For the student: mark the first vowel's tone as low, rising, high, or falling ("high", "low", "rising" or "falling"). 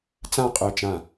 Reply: falling